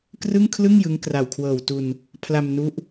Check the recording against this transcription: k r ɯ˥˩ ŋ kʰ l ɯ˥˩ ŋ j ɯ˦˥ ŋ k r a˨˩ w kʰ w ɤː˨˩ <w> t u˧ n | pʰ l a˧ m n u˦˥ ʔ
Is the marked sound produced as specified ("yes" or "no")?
yes